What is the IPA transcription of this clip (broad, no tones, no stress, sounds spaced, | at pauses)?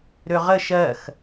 ɾ ø ʁ ə ʃ ɜ x